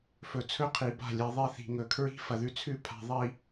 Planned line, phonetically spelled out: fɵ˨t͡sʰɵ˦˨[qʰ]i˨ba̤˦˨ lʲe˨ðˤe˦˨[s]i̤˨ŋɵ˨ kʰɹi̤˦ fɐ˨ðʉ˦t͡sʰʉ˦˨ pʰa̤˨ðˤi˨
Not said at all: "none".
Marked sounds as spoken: qʰ, θ

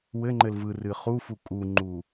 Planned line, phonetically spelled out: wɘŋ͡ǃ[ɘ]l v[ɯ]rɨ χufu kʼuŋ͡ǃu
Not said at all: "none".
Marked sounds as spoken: ɘ, ɯ

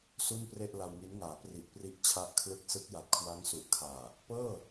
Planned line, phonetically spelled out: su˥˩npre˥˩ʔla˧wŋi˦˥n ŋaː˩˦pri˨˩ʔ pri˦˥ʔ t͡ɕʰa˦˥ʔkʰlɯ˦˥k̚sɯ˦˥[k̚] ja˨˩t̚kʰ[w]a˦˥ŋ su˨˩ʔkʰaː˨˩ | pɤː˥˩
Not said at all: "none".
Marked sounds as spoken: k̚, w

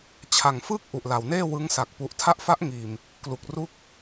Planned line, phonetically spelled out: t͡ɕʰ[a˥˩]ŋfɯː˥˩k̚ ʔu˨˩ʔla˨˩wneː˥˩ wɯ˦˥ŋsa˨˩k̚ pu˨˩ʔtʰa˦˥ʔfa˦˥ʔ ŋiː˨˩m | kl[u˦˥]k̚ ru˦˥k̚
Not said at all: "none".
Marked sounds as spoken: a˨˩, u˨˩

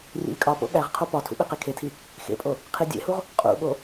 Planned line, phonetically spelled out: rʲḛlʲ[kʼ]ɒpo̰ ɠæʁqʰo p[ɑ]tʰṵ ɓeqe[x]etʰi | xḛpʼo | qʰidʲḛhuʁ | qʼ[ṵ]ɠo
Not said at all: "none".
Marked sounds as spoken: kʼ, ɒ, kʰ, ṵ

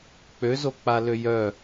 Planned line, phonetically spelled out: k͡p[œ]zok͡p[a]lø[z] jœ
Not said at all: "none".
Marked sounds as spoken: ø, a, none

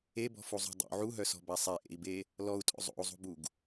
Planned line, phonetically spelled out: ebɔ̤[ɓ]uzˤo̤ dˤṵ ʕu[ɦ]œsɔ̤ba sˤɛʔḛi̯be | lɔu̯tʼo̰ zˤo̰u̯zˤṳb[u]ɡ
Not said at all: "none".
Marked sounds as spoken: f, ɦ, u

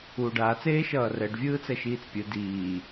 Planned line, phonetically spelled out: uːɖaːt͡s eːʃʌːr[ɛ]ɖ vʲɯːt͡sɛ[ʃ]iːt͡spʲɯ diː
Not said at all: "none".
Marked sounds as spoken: ɛ, ʃ

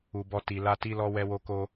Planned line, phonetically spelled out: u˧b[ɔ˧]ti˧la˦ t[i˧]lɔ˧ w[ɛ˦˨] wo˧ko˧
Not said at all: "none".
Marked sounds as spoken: ɔ˦, i˧, ɛ˧

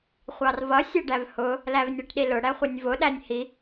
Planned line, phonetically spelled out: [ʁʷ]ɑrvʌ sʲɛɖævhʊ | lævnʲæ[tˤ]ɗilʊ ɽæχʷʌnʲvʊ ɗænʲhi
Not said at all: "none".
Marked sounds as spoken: χʷ, ʈ

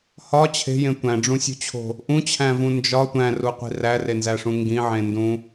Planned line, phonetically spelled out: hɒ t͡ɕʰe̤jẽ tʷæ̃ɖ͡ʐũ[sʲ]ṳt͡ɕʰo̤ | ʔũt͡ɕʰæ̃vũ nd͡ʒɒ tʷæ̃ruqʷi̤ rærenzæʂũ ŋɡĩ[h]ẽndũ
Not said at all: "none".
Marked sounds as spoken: sʲ, ʕ

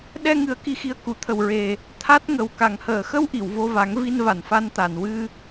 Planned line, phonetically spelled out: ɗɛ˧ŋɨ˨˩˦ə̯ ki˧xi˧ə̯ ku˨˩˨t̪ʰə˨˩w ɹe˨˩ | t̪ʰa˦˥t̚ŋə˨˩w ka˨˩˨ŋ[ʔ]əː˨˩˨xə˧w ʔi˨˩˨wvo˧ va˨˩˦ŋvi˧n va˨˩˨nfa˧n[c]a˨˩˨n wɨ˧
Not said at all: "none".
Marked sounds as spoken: h, t̪

